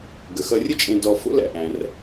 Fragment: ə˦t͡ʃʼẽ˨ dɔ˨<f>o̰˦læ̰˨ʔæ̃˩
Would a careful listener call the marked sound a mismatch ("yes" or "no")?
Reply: no